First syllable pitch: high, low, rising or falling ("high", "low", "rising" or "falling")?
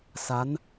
rising